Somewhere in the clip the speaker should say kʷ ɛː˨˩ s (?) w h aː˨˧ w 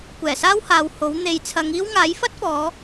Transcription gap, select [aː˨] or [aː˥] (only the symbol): aː˥